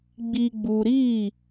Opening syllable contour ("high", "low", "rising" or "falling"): low